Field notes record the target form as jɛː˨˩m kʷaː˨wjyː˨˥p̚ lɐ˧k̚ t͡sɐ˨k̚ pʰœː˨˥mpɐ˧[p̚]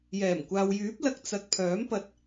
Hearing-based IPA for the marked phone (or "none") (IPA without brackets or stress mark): t̚